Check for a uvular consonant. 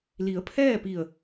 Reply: absent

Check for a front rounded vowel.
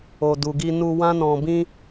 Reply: absent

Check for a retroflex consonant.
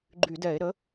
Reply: absent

